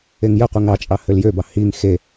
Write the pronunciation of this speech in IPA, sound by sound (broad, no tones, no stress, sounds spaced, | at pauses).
e ŋ j ə qʷ e ŋ ɑ t͡ʃʼ ɑ h ø l j ø b ɑ h i ŋ x e